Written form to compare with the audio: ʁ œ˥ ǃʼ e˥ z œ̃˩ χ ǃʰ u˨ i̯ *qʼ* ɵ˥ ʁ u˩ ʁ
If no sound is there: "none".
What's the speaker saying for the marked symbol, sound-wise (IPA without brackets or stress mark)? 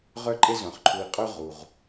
qʼ